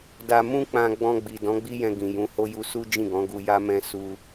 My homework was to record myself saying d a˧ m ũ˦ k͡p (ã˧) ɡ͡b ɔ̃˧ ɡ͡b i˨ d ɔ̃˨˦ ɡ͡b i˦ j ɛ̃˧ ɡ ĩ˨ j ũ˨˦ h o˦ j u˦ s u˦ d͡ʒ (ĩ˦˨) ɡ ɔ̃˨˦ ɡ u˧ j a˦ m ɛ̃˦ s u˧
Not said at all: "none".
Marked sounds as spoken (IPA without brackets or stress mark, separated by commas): ã˧, ĩ˦˨